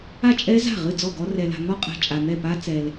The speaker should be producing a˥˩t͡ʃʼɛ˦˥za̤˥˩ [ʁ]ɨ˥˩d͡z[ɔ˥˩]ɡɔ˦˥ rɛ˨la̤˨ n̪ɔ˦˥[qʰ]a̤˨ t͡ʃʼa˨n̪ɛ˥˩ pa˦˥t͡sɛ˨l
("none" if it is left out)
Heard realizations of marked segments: ʁ, ɔ˥˩, qʼ

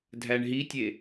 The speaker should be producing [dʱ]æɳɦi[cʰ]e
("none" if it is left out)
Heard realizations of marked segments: dʱ, tʲ

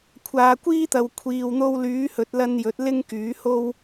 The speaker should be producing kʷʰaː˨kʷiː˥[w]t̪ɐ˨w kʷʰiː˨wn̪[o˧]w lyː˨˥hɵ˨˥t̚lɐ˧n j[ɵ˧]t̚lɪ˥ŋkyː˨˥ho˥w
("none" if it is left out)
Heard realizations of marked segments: none, o˧, ɵ˨˥

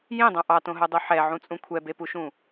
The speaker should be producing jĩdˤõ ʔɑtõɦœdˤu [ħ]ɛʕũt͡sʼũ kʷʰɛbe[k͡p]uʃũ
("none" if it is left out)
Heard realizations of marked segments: ħ, p

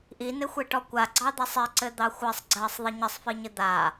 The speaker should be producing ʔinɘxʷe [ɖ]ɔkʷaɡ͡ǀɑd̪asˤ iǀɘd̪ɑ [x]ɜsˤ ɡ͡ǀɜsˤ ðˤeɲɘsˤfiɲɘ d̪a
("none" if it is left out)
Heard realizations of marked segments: ʈ, xʷ

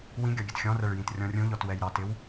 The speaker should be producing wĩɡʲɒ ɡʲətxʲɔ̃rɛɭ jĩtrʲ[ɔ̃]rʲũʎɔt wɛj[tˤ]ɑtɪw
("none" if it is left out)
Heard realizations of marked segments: ɔ̃, ɾ

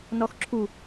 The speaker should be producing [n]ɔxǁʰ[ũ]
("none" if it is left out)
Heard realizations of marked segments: n, u

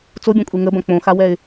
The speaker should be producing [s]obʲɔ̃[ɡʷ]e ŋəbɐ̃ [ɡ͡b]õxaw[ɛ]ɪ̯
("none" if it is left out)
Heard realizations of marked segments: t͡s, kʷʼ, k͡p, ɛ

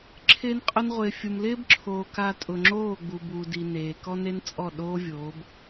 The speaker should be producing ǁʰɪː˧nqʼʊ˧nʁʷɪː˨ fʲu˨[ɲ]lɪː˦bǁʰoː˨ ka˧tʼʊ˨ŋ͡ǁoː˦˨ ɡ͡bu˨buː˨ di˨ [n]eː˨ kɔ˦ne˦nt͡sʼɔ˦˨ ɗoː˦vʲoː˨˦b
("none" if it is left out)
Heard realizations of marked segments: m, n

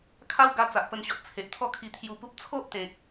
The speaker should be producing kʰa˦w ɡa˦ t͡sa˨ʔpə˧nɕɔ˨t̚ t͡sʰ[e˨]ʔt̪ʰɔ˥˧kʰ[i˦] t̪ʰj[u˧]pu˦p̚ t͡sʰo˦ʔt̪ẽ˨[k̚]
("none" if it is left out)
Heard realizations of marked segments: e˨, i˧, u˧, k̚

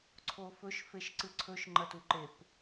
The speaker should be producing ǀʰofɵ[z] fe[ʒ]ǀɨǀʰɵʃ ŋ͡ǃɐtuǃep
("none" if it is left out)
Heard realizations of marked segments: ʃ, ʃ

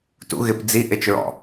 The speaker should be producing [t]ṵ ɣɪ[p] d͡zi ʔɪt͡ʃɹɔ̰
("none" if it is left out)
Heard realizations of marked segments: t, p

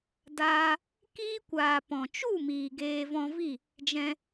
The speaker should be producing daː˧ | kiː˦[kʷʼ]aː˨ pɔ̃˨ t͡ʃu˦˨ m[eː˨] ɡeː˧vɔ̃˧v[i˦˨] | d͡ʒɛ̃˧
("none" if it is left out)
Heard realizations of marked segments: kʷ, iː˨, i˦˨

